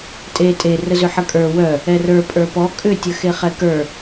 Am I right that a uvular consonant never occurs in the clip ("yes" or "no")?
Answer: no